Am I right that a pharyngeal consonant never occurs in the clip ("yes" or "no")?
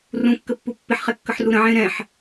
no